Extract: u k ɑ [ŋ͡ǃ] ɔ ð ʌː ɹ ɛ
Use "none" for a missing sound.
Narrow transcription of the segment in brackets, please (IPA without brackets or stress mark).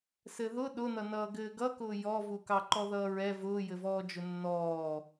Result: ǃ